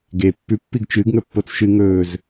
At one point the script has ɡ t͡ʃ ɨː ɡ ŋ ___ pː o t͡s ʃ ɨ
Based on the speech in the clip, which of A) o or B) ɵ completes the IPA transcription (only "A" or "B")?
B